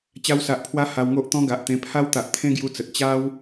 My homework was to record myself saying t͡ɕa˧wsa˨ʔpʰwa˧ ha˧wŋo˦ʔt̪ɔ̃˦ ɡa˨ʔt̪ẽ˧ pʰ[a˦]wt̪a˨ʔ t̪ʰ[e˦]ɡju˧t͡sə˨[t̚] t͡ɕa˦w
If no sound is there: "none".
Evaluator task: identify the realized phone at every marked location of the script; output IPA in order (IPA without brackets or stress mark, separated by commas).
a˦, ẽ˦, t̚